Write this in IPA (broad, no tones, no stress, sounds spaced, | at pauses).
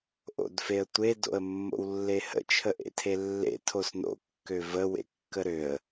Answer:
ʔ o̰ d f e ə̯ tʷ e d o̰ ə̯ mː o̰ w lː e h ə̰ t͡ʃʰ ə ʔ ḛ tʰ e lː ḛ tʰ o s n o̰ kː ø v ə w ḛ kː ə ɾ ø ə̯